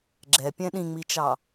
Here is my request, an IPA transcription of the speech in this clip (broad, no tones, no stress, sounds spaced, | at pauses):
ɡ͡ǁ ɛ pʲ ɛ̃ ɗ ĩ ŋ͡m i t͡ʃ ɑ